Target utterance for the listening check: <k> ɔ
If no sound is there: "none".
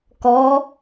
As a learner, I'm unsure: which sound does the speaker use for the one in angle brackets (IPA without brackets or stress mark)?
k